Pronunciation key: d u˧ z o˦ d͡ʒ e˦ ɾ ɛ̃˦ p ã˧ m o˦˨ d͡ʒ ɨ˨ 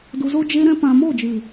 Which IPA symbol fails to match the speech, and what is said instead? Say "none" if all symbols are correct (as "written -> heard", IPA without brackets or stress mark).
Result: none